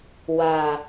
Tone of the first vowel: low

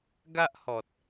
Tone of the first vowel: high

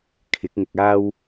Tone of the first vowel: rising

